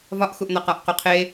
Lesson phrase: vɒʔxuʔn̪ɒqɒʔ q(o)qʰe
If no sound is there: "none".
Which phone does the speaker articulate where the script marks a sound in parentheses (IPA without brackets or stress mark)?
o